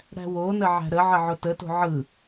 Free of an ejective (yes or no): yes